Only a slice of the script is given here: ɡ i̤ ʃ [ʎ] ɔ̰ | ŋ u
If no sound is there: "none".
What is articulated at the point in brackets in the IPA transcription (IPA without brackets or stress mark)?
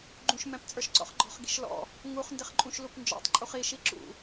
l